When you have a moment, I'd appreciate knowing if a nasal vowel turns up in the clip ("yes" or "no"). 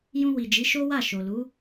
yes